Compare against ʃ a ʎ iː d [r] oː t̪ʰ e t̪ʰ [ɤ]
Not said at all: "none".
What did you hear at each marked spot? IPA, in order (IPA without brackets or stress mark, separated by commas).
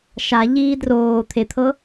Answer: r, ɤ